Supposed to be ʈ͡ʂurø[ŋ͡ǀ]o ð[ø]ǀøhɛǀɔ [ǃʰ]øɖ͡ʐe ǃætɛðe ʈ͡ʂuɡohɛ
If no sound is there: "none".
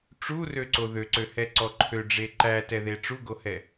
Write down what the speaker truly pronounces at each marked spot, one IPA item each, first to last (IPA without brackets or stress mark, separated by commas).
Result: ǀ, ø, ǃʰ